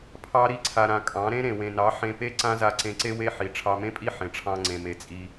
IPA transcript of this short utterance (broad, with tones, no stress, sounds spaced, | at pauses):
pʰ ɑ˦ ɾ i˦ ǀʰ a˧ ɾ ã˧ kʼ ɑ̃˨˦ ɾ ẽ˦ ɾ ẽ˨ w ẽ˨ n ɑ˨˦ ħ ẽ˧ p e˦ ǀ ã˦ z a˧ ǀ ẽ˧ ǀ e˦ w e˦ ħ i˨ ʈ͡ʂʰ ɑ˧ m ẽ˦ pʼ i˦ ħ ẽ˨ ʈ͡ʂʰ ɑ̃˧ ŋ͡ǀ ẽ˨ m e˨ t͡sʼ i˧